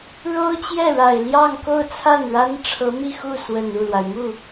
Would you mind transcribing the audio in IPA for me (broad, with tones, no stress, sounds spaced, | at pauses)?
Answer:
ɻ o˥ ʊ̯ t͡ɕ j ɛ˥˩ ɻ a˨˩ ɪ̯ l j ɑ˥˧ ŋ k o˥˧ ʊ̯ t͡sʰ a˥˩ n ɻ a˥ n ʈ͡ʂʰ ɤ˧˥ m i˥˧ x u˥˩ s w ə˨˩ n u˥˩ l w a˩ ɪ̯ m u˥˩